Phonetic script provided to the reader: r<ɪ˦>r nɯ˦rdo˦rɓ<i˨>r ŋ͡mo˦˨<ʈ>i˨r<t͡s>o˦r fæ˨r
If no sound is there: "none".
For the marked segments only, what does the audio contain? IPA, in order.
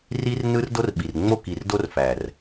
i˦, i˨, k, d

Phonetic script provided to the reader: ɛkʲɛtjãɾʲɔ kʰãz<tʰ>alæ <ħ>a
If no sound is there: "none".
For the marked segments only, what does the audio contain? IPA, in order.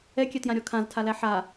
tʰ, ħ

